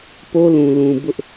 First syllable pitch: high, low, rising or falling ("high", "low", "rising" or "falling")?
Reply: high